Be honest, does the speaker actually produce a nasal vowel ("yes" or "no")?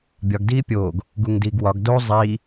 no